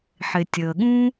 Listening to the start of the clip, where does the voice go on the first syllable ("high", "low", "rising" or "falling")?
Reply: low